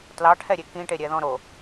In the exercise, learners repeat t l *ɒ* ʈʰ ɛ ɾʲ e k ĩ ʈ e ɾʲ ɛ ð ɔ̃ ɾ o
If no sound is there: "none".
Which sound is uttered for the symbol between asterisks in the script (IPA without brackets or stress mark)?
ɑ